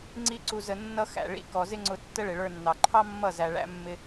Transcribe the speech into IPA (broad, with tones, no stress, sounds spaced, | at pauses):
ŋ͡ǀ i˦ ǀ u˧ z ə˧ nː ʌ˦ x æ̰˨ ɭ ḭ˧ k ɔ˨ z ɪ˦ ŋ͡ǀ ʊ˧ tː ə˦ ɭ ɪ˨ ɭ ə˞˧ nː ɑ˨ ǃʰ ɑ˦ mː ʌ˦˨ z æ˨ ɭ æ̰˦ mː ɪ˦